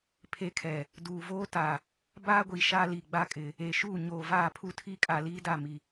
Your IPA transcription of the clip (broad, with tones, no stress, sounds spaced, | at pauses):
pʰ e˦ kʰ ɛ˨ | d uː˨ v oː˦ t a˨ | b aː˦ ɡʷ i˨ ʃ aː˦ l i˨ ɡ͡b a˦ kʼ ɪ˨ | e˨ ʃ u˦˨ ɲ oː˨ v aː˦˨ pʰ u˦ tʰ i˦ kʼ a˨ l iː˦ d a˦˨ m i˨